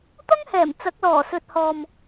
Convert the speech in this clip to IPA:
t̪ɐ˥ŋhɛː˨˩m t͡sɐ˨˥k̚lɔː˨˩sɵ˨t̚ hɔː˨m

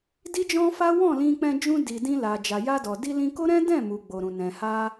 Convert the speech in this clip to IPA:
di˦d͡ʒɔ̃˦fa˦ wɔ̃˦˨lĩ˧k͡pɛ̃˧d͡ʒũ˧ di˨ dĩ˧la˨ d͡ʒa˨ja˧dɔ˨ di˧lĩ˧ko˦ɾɛ̃˦ dɛ̃˦˨mu˨ ɡ͡bo˨ɾũ˨ nɛ̃˨ha˧

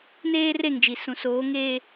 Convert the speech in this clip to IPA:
neː˦re˦˨ŋd͡ʒi˨ sũ˨soː˨˦ŋeː˦

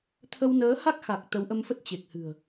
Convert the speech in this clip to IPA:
t̪ʰə˧wnəː˨˦ ha˦˥k̚xa˨˩k̚ t̪ə˨˦wʔə˧mfə˦˥t̚ t͡ɕe˨˩k̚hɨ̤˨˩ə̯

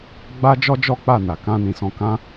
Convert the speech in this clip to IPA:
ɡ͡ba˦d͡ʒɔ˦d͡ʒɔ˦ k͡pa˦˨na˨ kã˧nĩ˨sɔ̃˧ kã˦

